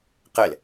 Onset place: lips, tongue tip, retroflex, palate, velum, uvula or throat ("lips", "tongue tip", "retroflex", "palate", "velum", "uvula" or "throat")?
uvula